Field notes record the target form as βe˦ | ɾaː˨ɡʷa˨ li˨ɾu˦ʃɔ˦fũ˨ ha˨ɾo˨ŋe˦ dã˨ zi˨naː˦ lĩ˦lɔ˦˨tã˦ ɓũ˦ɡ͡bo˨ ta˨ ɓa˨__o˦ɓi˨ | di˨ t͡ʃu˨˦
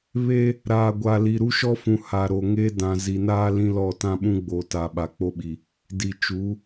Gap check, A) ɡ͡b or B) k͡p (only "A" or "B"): B